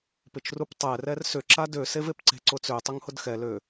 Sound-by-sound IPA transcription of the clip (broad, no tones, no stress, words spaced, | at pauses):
pɪt͡ʃruptˤɛ rɛrsʏ ǁadø sevepǀe̤ ǀʊt͡sø tˤʏŋhʊdxɛ lø